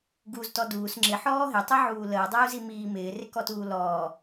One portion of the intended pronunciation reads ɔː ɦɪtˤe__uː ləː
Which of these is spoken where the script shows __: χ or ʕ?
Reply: ʕ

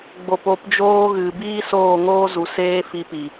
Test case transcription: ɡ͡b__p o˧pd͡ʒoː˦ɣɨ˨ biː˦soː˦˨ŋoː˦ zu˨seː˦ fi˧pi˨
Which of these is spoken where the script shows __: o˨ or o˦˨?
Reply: o˨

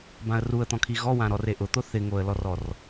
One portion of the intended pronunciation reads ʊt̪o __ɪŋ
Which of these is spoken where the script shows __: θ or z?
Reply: θ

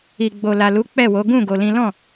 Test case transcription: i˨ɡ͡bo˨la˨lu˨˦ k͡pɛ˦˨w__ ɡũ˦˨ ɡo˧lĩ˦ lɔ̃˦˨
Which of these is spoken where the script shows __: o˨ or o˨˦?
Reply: o˨˦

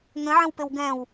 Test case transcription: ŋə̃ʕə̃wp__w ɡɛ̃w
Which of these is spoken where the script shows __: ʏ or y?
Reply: ʏ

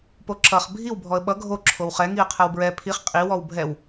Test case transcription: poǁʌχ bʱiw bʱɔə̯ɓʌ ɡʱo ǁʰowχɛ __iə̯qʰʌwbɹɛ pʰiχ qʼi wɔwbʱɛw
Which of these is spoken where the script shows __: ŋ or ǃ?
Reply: ŋ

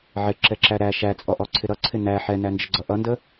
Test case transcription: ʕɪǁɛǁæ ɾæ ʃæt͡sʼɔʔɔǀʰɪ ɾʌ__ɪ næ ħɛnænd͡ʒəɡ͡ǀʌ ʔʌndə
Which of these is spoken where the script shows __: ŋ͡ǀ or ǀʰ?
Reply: ǀʰ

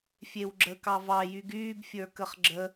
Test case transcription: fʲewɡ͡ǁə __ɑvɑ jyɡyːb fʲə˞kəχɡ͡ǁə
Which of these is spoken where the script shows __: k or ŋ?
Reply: k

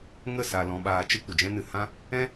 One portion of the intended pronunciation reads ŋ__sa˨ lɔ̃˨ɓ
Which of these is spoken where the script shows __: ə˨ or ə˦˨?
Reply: ə˦˨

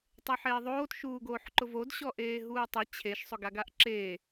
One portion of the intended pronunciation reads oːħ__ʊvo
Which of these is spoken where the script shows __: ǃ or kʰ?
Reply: ǃ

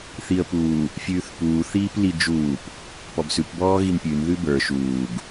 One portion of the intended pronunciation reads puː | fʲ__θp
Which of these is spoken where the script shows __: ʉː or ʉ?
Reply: ʉː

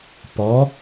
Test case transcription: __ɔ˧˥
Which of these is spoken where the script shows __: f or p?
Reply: p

